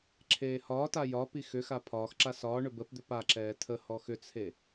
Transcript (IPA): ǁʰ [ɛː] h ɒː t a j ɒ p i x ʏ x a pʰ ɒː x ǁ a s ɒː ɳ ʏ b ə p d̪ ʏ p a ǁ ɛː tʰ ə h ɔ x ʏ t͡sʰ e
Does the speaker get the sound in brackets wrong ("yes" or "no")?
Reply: yes